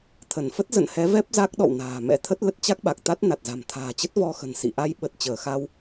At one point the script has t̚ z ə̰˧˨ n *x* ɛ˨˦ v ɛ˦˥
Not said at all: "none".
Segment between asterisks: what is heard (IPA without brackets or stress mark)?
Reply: h